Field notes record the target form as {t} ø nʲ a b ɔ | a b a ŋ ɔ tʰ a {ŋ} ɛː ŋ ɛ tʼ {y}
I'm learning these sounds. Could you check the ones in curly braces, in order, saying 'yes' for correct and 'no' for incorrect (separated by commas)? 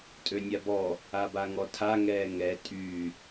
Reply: no, yes, yes